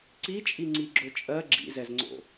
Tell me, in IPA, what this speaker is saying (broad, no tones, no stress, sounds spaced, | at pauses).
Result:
ǀ i t͡ʃʼ i ŋ͡ǀ i ɡ͡ǁ o t͡ʃʼ ɜ ɡ͡ǁ ḭ z ɛ z ŋ͡ǀ o̰